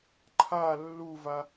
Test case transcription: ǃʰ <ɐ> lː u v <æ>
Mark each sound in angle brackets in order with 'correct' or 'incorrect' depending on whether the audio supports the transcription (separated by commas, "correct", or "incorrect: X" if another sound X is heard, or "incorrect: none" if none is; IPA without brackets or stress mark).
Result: incorrect: a, incorrect: a